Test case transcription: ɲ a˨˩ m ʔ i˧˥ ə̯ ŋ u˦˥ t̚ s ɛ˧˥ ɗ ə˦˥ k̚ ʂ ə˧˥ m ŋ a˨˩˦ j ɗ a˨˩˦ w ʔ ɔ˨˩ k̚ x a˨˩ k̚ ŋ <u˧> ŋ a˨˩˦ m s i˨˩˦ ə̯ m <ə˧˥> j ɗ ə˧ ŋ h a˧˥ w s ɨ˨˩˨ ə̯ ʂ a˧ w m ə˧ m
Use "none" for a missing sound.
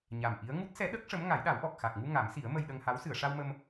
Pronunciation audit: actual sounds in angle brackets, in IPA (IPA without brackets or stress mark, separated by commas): u˧, ə˧